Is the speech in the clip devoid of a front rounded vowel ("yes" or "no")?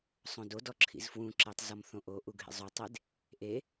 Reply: yes